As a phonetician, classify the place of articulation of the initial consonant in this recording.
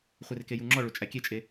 uvular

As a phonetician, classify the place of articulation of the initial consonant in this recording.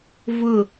labial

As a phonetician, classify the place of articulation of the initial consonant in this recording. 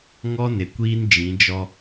velar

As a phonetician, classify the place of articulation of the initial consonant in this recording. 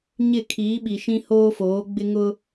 palatal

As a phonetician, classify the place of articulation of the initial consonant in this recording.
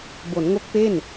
labial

